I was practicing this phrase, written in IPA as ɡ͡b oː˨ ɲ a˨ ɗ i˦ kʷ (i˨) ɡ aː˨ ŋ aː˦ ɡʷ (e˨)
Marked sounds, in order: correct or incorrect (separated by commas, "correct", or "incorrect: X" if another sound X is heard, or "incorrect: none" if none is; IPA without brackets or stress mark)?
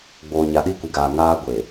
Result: correct, correct